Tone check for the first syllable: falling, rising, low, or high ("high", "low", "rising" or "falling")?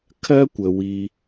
high